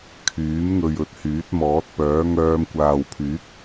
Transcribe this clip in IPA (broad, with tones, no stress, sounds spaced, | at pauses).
kʰ yː˨˥ m ŋ ɵ˧ ɥ ɵ˧ t̚ h yː˨˥ t̚ m ɔː˨˥ t̚ p œː˨˥ ŋ œː˧ m kʷ aː˨ w pʰ yː˨˥ k̚